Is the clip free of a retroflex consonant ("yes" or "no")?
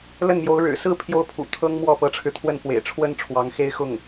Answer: no